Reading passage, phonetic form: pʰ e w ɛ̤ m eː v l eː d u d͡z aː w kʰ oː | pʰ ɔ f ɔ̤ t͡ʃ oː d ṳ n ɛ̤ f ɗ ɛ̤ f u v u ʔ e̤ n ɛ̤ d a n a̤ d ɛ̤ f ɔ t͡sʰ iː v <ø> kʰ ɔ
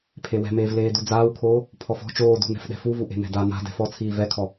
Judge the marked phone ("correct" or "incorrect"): incorrect